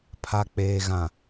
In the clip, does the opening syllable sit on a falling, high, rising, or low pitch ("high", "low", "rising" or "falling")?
low